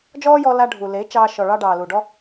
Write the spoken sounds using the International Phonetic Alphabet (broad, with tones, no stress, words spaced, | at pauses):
d͡ʒɔː˦jɔ˧la˧ ɖʱu˨le˨˦ t͡ʃɑː˧ʃɔ˨ɭɑ˧ ɖɑː˨lu˨ɖɔ˦